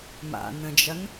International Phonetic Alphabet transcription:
m a̰ n ə̃ d͡ʒ ɐ n

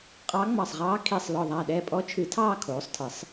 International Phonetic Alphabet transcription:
qʼ ɑ˧˥ ŋ͡m ɑ˧˩ sˤ ʁ ɑː˧˥ kʰ i˧˩ sˤ l ɔ˧˩ ðˤ a˧˩ ɗ ɛː˧˩ pʼ ɔ˧˥ t͡ʃʰ ɨ˨˩˦ tʰ ɑː˥˨ kʰ oː˩˥ sˤ tʰ ɨ˩˥ sˤ

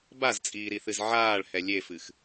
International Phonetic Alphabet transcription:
b a z t͡sʼ iː ɾ i θ ɨ z ʕ aː ɭ h ɛ lʲ e f ɨ x

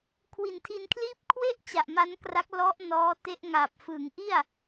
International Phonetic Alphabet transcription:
kʰ w i˨˩ n tʰ i˧ n kʰ l iː˥˩ p̚ kʰ w e˥˩ ʔ t͡ɕ a˨˩ ʔ m a˦˥ n k r a˦˥ k̚ l ɔ˦˥ ʔ n ɔː˦˥ t e˦˥ ʔ ŋ a˨˩ p̚ f ɯ˩˦ ŋ ʔ i˥˩ a̯

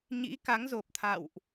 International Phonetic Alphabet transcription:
ɲ ḭ˧˥ k a˨˦ ŋ z o˨˩ p̚ t̪ʰ a̰˧˨ w ʔ

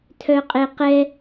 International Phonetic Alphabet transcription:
tʰ œ qʼ e q ɛ

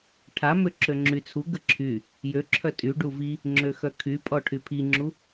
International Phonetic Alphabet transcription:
ʈʰ a m ø ǁ ø ŋ͡ǁ y t͡sʰ u ɡ ə ǁʰ y | j ø ǁʰ œ tʼ y ɖ u v i | ŋ͡ǁ ø x œ kʰ y pʼ ɔ ʈʰ y pʰ i ŋ͡ǁ u

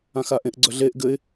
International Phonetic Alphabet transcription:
ã x a ʔ ẽ ʔ ɡ͡ǀ œ ɮ e ʔ ɡ ɘ ɪ̯

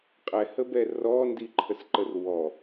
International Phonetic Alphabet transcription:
qʼ ɛ h ə b ɛ r ɔ n d i ǃʰ ə s ǃ ə r w ɔ

